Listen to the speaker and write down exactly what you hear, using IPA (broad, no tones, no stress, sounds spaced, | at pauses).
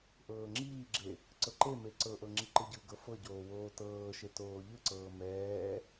ʔ ɤː ŋ͡ǁ iː ɡ͡ǁ e | ǀ ɤ ǃ e m e ǀ ɤ ʔ ɤ ŋ͡ǁ i ǃ ɯ ɟ ɯ ɡ ɤ f ɤ ɟ oː w oː t ɤː ʃ e t oː ʎ ɯ ǀ ɤː m ɛː